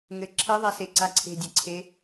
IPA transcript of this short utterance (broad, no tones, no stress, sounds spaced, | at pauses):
ŋ ɘ ǁʰ ɘ ðˤ ɛ s e ǀ a ǀʰ e̤ dʲ ɘ ǀʰ e